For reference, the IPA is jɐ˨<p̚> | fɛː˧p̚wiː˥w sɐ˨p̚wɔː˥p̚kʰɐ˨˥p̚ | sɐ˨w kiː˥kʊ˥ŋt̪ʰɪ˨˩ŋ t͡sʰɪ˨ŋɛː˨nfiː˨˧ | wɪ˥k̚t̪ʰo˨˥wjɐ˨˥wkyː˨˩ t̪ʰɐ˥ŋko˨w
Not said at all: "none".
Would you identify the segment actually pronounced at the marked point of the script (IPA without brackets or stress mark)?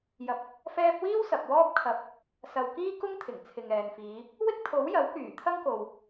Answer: p̚